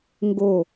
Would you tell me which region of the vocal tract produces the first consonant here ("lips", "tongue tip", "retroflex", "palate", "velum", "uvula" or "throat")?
velum